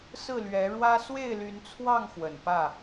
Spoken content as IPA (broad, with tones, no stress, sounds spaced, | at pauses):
s ɹ̩˥˨ l ɥ ɛ˨˦ ɻ w ä˦ s w e˥˨ ɪ̯ l y˨˦ n t͡sʰ w ɑ˥˨ ŋ x w ə˨˩ n p ä˥˨